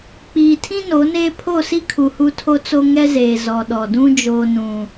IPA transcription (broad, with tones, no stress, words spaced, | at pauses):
k͡piː˨tʰĩ˦ no˨˦neː˦ pʰo˦˨si˦kʰu˨ hu˦tʰo˦t͡so˦ ŋɛ˦zeː˨ zɔ˨ ɗɔ˨dũ˦ d͡ʒoː˦nũ˦